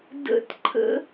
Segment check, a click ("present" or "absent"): present